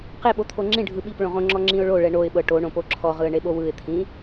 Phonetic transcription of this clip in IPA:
qeɓo t̪ʰoŋ͡ǁĩ ɖʱɯɓip ɭõʁõŋ͡ǁɔ ŋ͡ǁĩʊ̯ɭo ɭɛɳoɪ̯ɓɤ ʈoɳõpo ǁʰɔʁɯə̯ɳeɓo wɯɪ̯t̪ʰĩ

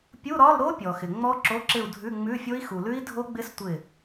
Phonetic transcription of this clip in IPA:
pʲu˧˥˧ɾɒ˧˥˧lɾo˦˥ pʲɔ˨xɪ˨ ŋ͡mɔ˦˥ǁo˧˥˧ǁɪ˦˨u̯ dʱʉ˧˥˧ŋ͡mʉ˧˥˧fʲo˦˥i̯ xu˨lʉ˦˥i̯dʱo˦˥ɡ͡bɪ˦˥s tʷɪ˦˨

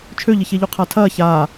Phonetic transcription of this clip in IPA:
t͡ʃʰøʎɪçeʎu qʰatʰɐː çaː

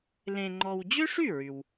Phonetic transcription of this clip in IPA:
lẽ˧ŋ͡ǃɔ˧w d͡ʑø˥ʂy˥˩ ɹy˩w

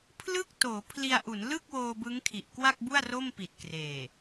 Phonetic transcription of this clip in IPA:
pʰlɯ˥˩k̚toː˩˦pʰli˧a̯ʔu˩˦n lɯ˥˩k̚woː˧ bɯ˦˥ŋkʰi˨˩ʔkwa˥˩k̚bu˥˩a̯ ro˥˩m pi˨˩t̚kreː˨˩

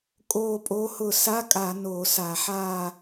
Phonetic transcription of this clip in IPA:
kʼoː˦˨pʼo˧˥hʊ˦˨ sa˧˥˧kʼa˧˩˧ noː˧˩˧sa˧˩˧ħaː˦˨

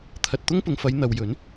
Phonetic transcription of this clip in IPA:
t̪ʰɐ˨t̚t̪ʊ˥ŋpʊ˨˧ŋfɐ˨˧j n̪ɐ˨wjɵ˨˥n

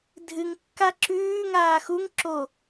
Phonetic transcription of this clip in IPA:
dʱɨŋkːa ǁʉː ŋaːxuŋ ǁo

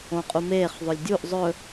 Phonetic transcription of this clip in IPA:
õqʼumeːχ ðˤɵlʲdʲuʔ zˤɵ

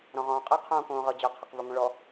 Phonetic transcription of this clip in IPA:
ɾɔ̃ʁɔ̃ːqʼɨ qʰõːkõːʁɤd͡ʑɔ qʰɐqvəŋʷə̃ɭɔ

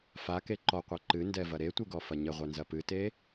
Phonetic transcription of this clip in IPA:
fake ǃɔqʷɛ ǃɨndɛvɐ ɾetʷiɡɔfɐ ɲɘʁʷɛnzɐ pɨte

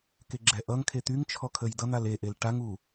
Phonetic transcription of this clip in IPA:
keɡ͡ǁɛʔʌŋkʰe t̪yŋt͡ʃʰɔ kʰəjdʌn̪al eʔel ʈaŋu

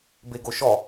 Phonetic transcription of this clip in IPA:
beɡoʃɔ

